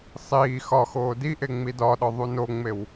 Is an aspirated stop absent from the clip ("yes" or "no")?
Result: yes